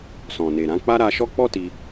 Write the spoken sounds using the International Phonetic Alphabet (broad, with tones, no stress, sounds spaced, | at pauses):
s ɔ̃˨ n e˨ ɾ ã˨˦ k͡p a˦ ɾ a˧ ʃ ɔ˦ k͡p ɔ˦ t i˧